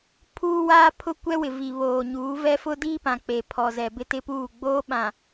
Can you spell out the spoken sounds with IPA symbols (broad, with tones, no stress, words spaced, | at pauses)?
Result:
pʰuː˦ waː˦pʰʊ˦kʷɛ˦wɪ˨ vi˨βoː˨ɲuː˨˦vɛ˦ fʊ˦diː˦pã˨ k͡pe˨pʰɔ˨zɛ˨ bɪ˦tɪ˦puː˦˨ ɡ͡boː˦ ɓã˨